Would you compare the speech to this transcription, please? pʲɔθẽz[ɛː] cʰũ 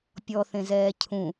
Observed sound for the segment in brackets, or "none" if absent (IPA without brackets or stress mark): ɛː